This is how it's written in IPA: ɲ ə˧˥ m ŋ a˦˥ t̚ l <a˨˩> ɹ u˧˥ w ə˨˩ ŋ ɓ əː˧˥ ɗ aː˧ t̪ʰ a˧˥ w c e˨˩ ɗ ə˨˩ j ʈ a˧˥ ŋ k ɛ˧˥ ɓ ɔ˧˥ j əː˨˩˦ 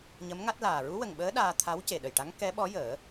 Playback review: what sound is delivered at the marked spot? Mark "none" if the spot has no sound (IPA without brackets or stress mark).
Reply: aː˨˩